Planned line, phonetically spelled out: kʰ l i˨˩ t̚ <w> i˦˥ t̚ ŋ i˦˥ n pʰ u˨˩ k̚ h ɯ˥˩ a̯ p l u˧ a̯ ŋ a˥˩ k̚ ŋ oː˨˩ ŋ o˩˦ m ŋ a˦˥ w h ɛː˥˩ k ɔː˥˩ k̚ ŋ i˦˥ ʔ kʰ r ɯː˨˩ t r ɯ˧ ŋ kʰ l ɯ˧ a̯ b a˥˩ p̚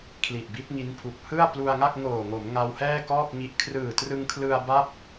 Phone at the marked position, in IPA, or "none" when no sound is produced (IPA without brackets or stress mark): b